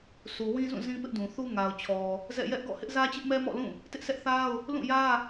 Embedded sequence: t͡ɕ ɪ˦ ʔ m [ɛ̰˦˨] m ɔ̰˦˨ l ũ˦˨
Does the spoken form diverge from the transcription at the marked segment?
yes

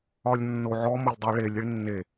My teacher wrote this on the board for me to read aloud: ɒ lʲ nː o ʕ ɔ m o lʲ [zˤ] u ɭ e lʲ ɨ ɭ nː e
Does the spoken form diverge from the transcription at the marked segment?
yes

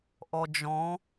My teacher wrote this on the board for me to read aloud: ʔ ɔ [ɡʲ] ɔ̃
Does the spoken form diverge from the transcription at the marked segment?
yes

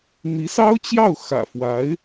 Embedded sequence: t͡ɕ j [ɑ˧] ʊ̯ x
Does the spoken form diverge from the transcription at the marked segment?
yes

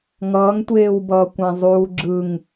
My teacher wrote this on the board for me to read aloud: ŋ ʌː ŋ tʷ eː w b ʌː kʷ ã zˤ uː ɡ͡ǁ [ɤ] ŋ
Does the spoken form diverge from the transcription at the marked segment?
yes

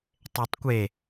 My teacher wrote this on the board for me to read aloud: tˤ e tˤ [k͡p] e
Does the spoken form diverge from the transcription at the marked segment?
yes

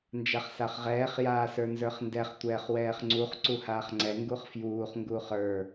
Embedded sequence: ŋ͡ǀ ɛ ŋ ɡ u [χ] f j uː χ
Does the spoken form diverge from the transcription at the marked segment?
no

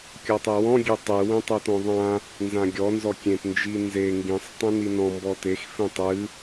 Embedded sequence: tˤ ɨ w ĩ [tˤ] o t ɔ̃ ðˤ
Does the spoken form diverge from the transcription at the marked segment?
no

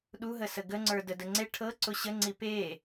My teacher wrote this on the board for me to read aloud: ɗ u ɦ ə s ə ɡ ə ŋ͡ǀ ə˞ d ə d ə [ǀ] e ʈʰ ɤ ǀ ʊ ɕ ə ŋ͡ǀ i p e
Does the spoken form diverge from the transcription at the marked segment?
yes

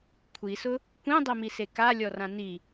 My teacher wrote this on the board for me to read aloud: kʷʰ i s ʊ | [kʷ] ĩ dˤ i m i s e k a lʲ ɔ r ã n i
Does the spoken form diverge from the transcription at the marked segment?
no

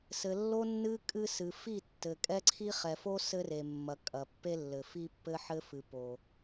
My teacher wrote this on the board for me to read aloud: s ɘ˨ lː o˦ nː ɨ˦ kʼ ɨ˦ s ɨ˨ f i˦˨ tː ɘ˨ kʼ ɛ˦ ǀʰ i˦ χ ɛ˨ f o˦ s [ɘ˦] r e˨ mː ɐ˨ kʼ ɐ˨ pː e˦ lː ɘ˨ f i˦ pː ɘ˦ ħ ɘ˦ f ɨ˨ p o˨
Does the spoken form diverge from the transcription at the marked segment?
no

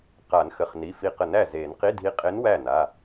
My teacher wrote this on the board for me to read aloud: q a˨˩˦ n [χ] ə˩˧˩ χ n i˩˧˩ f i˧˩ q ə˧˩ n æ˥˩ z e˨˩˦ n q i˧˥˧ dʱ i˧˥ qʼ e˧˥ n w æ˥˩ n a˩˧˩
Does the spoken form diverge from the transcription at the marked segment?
yes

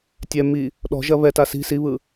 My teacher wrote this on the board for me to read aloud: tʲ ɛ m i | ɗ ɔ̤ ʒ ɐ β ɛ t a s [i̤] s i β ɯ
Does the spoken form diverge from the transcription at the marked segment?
no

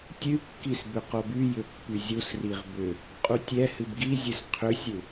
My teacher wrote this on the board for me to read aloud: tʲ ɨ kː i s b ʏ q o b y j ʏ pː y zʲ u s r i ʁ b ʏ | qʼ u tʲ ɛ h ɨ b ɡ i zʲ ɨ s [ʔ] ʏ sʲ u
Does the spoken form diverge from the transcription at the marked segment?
yes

